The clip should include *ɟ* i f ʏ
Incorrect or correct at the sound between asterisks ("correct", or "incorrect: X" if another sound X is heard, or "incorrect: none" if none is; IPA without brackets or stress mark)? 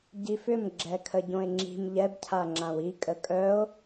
correct